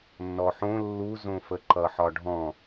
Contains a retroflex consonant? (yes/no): yes